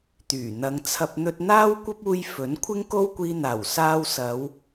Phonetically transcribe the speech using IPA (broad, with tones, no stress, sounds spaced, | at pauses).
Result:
t̪ yː˨˩ n̪ ɐ˨˧ ŋ t͡sʰ ɐ˧ p̚ n̪ ɵ˧ t̚ n̪ aː˥ w kʷ ɐ˥ p̚ uː˧ j f ɵ˨˥ n kʷʰ ɪ˥ ŋ k o˥ w kʷ iː˧ n̪ aː˨˩ w s aː˧ w s ɐ˨˧ w